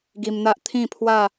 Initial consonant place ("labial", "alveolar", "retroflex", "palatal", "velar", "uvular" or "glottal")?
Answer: velar